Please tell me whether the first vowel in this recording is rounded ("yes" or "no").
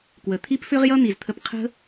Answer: no